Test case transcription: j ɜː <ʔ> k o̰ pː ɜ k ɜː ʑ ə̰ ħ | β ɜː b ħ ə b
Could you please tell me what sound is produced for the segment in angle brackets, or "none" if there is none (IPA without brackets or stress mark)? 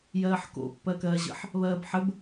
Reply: ħ